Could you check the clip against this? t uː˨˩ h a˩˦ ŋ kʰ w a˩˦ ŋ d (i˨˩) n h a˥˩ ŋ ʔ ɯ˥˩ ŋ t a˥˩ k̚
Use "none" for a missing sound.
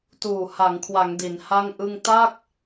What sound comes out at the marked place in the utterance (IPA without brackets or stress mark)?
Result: i˩˦